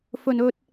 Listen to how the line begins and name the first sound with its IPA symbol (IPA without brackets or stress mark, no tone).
f